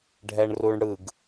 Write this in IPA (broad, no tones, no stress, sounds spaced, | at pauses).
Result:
ɖʱ ɛ ɳ r u ɳ ɽ ɯ ɡ